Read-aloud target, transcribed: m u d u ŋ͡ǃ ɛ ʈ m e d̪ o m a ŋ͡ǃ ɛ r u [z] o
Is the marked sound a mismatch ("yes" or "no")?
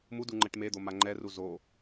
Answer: no